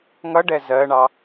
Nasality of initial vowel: oral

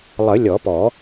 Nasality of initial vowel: oral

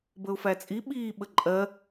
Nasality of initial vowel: oral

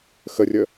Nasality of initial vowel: oral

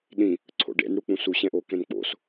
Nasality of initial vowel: nasal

